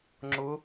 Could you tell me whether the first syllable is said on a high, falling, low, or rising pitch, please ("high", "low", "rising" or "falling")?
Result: rising